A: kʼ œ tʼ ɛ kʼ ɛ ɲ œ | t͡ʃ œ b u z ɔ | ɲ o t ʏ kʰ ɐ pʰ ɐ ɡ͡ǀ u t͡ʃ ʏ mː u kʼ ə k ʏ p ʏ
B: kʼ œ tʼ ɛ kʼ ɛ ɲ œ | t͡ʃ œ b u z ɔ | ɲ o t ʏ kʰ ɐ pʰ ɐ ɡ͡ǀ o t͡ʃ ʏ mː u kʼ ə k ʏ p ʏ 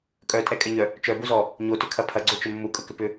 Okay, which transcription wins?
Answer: B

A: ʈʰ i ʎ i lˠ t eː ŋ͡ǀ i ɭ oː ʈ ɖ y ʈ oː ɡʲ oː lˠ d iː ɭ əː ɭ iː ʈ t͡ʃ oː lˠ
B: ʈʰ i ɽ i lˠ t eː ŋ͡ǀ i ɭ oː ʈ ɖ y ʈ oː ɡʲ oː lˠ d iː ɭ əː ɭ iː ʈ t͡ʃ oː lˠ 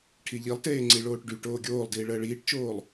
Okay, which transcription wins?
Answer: A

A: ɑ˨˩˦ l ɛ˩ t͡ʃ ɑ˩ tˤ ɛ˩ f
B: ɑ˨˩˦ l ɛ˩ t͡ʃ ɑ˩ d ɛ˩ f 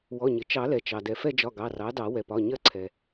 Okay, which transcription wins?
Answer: B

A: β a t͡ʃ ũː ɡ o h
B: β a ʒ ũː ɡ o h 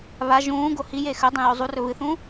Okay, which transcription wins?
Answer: B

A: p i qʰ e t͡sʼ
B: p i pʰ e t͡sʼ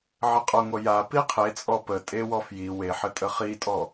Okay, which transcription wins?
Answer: A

